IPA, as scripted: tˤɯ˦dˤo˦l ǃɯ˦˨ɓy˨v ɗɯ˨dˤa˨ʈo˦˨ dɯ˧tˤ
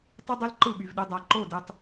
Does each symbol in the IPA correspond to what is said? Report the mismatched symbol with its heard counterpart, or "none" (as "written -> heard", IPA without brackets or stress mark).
ʈ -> ǃ